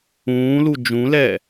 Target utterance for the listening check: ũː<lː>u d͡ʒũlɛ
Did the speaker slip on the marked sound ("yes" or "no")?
yes